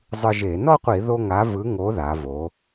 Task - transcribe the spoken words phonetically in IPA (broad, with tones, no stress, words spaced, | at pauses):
zˤɯ˧ʒe˧˩˧ nɔ˥˧qʷi˧˩˧ðo˧ ŋa˨˥vɯ˨˥ ŋo˨˥ða˩˧vo˩˧